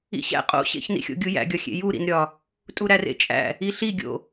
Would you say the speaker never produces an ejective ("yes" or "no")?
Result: no